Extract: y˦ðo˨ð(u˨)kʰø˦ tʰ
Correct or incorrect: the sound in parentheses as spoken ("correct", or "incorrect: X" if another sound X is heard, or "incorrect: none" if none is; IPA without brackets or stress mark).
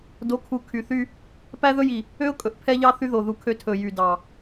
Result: correct